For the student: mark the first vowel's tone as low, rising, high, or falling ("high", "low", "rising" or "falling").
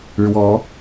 rising